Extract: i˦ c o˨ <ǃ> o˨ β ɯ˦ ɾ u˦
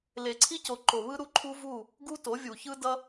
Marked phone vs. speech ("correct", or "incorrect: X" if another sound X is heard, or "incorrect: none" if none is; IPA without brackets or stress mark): correct